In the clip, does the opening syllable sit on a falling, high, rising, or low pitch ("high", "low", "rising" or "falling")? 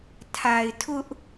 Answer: low